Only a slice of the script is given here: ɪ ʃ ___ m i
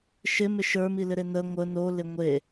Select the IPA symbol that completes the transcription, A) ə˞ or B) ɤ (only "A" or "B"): A